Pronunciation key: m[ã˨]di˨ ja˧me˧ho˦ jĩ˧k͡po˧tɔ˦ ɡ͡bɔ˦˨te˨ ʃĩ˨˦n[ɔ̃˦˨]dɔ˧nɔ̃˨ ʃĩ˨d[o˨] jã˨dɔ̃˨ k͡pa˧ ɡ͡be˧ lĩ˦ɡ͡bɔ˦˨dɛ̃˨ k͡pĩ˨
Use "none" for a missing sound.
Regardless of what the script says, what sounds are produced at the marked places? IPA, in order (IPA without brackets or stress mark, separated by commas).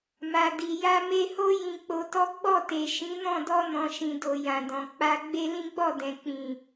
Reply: a˨, ɔ̃˦˨, o˨